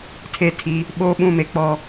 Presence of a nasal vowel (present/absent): present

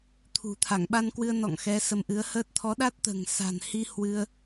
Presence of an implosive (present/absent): present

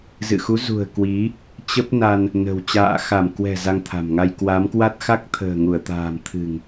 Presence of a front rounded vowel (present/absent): absent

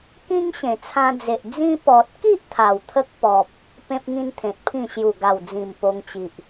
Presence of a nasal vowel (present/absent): present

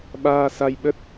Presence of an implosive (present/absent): present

